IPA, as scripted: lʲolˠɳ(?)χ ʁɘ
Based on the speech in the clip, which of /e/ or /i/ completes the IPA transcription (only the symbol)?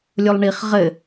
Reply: i